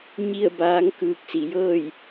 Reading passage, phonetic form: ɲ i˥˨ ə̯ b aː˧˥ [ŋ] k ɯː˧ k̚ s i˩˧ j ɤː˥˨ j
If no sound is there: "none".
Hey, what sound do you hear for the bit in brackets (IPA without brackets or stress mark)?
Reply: ŋ